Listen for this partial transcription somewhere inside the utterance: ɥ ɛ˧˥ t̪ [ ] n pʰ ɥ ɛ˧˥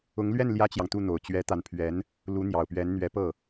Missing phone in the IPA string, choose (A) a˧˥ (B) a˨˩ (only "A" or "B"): A